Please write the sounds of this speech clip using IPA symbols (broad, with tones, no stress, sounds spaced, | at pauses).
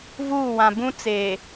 v uː˦˨ w ã˨ b ũ˦ t͡s e˨